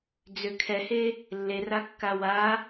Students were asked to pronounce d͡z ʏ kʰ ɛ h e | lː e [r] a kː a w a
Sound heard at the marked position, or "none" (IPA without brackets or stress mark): r